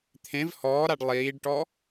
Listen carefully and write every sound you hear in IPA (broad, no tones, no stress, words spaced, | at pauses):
t̪ʰẽv hɔːɾaɖ lˠiːɖʈɔ